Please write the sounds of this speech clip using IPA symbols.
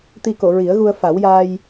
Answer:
t̪i˧ko˨˩˨ ɹi˨˩˦ə̯ɣu˧ə̯ fa˨˩˦wjaː˧j

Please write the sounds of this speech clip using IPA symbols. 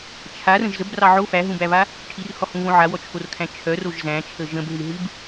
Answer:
t͡ʃʰarə̃ʒ zəbrɑ ʕo fæɦũbæβa | ʈʰirhɔhũβõ ʕawɔt͡ʃʰorkʰæ̃ t͡ʃʰœroʒ zæ̃t͡ʃʰə ʒə̃bɦɨɦɨb

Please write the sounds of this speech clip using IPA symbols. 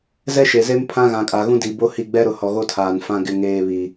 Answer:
zɛ˦ʃe˨ze˦m pʰã˦ɣã˨kʼa˨ ɣũ˦di˨bo˦hi˦˨ ɡ͡bɛ˦ɾʊ˨hɔ˨ ɣo˦tʰaː˨n fã˨ɡɪ˨ŋeː˨ βi˨

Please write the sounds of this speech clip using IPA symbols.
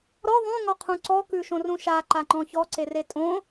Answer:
ɾɔ ðˤũŋɔqʰũ ǀɔkʉʃõrũ ʃaǃaŋ͡ǃɔ̃ çɔǀere tʼõ

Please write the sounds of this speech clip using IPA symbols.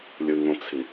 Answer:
lʲɯŋõt͡sʰi

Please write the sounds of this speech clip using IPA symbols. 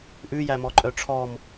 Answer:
ʔʉjæ mɔǃʼœʈ͡ʂʰɔm

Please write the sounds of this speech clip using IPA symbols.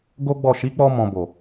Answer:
ɡo˦ɡ͡bɔ˦˨ ʃi˨˦k͡pɔ˧ mɔ̃˨bo˨

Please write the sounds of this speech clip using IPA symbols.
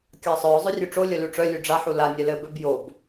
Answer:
kʲɑsˤœʊ̯ zˤœrʲʉʈ͡ʂo lʲœlʉʈ͡ʂœ lʲʉɖ͡ʐa ħula nʲɛlɘ bœbjob

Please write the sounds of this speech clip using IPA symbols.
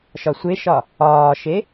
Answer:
ʃɒsʷeʃɒ | ɒːʃe

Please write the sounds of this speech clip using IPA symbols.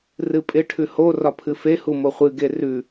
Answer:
rɨpʼɪ ʈʰʉho rɒpʰɨfe humoχʷɨ ɡerʉ

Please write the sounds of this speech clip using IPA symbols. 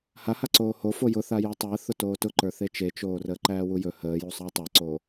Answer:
hahaǀoː ho fojʊθa jɔtˤəː θʊtoːtʊǃə˞ θet͡ʃet͡ʃoː rəːǃæːwujɵ həːjusˤəː tˤaǀoː

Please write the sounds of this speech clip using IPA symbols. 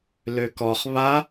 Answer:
løkɔχ βa

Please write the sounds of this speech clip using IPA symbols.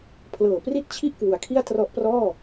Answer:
pʰlɤː˨˩pri˥˩t̚t͡ɕʰi˥˩ʔ kwu˩˦a̯kʰi˥˩a̯ trɔ˦˥ʔprɔː˥˩

